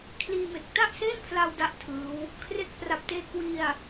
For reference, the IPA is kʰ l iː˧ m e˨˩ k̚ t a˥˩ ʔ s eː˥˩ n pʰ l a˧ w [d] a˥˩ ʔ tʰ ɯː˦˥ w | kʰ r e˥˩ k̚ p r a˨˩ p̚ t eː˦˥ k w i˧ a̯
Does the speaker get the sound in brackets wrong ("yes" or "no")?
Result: no